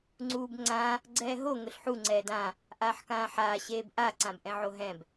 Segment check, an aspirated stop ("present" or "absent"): absent